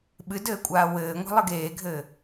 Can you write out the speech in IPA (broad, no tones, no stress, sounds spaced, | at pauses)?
ɓ ɨ d ɘː kʷʼ aː w ɘː ŋʷ ɛ̤ lˠ ɨ ɡ eː ɡʱ ɘ